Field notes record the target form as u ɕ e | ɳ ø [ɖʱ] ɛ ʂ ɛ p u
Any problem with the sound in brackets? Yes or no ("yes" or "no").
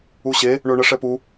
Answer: yes